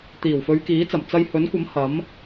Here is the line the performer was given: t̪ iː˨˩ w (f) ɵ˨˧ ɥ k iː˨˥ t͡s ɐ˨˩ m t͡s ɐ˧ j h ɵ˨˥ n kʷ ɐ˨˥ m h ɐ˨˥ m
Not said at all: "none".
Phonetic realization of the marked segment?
f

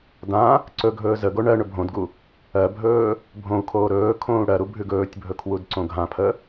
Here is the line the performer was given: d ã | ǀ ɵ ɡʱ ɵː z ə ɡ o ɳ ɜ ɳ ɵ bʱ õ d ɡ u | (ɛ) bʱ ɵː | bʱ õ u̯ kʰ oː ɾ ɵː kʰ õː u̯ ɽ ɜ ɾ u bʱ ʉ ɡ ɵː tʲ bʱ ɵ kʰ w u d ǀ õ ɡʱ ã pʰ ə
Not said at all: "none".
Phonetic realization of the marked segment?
ɜ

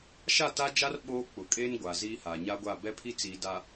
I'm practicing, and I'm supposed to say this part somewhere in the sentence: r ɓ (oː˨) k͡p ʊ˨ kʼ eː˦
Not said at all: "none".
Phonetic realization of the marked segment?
oː˦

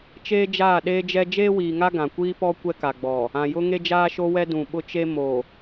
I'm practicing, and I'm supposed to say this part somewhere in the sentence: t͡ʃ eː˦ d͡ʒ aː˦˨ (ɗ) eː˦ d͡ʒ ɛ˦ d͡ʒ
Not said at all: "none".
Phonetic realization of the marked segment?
ɗ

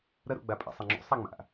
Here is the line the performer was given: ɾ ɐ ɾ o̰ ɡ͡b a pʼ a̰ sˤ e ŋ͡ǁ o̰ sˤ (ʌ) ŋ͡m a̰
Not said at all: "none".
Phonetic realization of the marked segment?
a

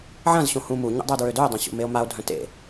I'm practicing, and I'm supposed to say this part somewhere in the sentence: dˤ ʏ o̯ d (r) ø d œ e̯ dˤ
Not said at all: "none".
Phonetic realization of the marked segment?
ɹ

